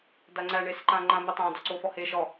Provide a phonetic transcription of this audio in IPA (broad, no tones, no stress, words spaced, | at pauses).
daŋ͡ǀæ ɳesəǃãŋ͡ǃã metˤã dɔǀofɔhe ʃɔ